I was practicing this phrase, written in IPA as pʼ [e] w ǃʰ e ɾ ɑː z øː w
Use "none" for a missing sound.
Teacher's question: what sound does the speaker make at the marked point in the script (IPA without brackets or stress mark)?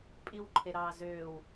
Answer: i